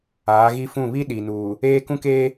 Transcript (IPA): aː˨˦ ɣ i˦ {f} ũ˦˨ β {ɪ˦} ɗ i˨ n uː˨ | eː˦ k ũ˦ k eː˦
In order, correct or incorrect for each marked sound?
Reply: correct, incorrect: i˦

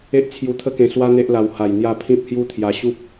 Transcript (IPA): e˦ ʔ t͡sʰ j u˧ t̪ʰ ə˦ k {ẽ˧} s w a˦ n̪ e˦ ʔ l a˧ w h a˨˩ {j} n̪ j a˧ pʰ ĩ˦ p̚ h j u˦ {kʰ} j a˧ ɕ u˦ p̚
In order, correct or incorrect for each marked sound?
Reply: correct, correct, incorrect: t̪ʰ

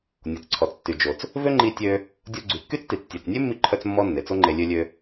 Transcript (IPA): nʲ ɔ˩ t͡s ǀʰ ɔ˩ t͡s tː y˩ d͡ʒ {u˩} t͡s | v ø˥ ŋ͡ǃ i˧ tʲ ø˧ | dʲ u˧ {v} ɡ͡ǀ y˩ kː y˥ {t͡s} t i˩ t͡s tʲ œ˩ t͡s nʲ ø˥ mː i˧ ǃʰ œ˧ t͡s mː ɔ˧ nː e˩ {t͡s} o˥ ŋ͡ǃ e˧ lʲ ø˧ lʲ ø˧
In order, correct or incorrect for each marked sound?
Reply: incorrect: o˩, incorrect: none, correct, correct

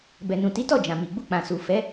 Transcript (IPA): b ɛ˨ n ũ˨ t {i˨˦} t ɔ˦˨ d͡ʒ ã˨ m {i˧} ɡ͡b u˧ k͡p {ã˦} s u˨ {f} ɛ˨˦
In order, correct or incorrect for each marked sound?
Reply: correct, incorrect: i˨, incorrect: ã˨, correct

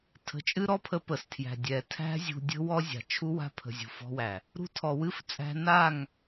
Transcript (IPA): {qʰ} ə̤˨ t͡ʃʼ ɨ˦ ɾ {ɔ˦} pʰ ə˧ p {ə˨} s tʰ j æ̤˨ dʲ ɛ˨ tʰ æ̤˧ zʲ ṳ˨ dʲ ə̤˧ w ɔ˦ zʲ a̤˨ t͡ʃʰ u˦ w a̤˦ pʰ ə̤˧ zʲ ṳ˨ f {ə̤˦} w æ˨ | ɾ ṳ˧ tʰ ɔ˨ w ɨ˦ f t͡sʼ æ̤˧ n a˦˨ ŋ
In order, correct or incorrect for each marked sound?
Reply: incorrect: tʰ, correct, correct, incorrect: ɔ̤˦

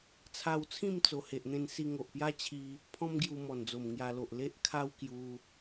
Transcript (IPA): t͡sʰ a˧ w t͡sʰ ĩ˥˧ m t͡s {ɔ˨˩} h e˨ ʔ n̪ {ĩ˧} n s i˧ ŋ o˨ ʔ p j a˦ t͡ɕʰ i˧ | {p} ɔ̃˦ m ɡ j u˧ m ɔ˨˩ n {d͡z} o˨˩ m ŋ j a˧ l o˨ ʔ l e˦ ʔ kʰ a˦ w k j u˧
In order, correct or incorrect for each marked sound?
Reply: incorrect: o˨˩, incorrect: ẽ˧, incorrect: pʰ, correct

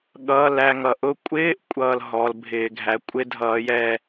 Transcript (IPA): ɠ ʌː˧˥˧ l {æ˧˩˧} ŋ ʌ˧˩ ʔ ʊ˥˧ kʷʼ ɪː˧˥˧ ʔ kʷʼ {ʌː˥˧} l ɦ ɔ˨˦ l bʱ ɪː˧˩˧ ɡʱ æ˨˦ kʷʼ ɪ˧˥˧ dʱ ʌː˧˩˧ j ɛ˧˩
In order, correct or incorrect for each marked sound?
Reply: incorrect: æ˥˧, correct

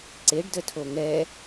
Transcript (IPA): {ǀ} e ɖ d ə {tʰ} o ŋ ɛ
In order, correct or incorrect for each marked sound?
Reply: correct, correct

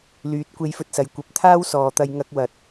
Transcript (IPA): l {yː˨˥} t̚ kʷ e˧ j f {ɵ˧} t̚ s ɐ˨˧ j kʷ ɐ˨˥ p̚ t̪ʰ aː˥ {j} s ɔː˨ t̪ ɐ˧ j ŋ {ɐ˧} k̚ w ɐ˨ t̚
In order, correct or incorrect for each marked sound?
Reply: correct, correct, incorrect: w, correct

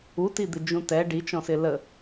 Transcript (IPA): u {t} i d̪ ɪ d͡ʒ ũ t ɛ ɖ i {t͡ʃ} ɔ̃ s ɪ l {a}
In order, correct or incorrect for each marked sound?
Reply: correct, correct, incorrect: ə

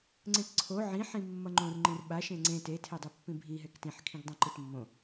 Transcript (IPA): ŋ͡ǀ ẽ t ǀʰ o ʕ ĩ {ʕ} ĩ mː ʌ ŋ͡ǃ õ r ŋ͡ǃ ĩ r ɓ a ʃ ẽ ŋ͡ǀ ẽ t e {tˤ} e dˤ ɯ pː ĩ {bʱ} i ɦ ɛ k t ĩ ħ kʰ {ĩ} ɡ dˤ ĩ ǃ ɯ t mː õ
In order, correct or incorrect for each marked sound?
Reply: incorrect: ħ, incorrect: tʰ, correct, correct

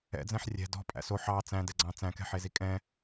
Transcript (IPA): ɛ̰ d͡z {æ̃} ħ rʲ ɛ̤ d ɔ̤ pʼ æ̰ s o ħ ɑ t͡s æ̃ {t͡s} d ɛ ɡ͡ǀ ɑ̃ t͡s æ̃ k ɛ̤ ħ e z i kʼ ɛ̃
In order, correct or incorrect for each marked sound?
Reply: incorrect: ɛ̃, incorrect: none

